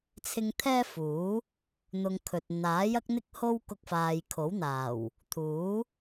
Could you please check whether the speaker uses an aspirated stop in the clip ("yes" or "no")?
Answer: yes